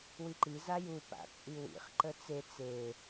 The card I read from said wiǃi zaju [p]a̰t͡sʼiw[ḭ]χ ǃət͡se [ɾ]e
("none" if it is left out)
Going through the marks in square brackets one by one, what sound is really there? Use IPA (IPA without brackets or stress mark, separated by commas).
p, ḭ, t͡s